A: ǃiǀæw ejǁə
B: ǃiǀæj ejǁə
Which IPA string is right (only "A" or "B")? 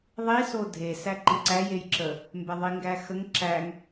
B